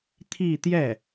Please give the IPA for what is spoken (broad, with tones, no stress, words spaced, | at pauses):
t̪ʰi˥˧t̪jɛ˥˩